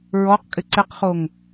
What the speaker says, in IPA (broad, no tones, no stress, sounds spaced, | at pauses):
ɹ ɔ q kʼ ɪ ǀ ɪ q χ o ŋ